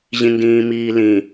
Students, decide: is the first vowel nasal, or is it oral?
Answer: nasal